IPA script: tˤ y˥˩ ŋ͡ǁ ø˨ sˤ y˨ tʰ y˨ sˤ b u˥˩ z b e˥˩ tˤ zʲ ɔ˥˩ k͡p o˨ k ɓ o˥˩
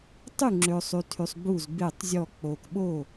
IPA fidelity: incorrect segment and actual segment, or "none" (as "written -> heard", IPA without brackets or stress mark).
none